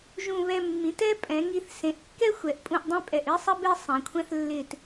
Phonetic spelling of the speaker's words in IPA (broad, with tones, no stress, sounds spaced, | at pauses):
ʒ ũ˧˩ β ɛ˧ mː ĩ˩˧ t ɛ˥ pʼ ɛ̃˩˧ ŋ i˧ θ s ẽ˩˧ ʔ kː ɛ˥ xʷ ɛ˩˧ ʔ pʼ ũ˧˩ ʔ dˤ ẽ˥ pʼ ɛ˧˩ ʔ i˥ sˤ ɘ˥ b e˥˧ sˤ ẽ˩˧ kʷʰ ɛ̃˥˧ θ lː ɪ˧˩ t